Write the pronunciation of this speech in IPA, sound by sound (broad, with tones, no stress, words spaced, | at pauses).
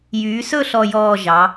jyː˩˧sɵ˦˨ ɬɔ˦˨jɔː˦˨ ʒɑ˩˧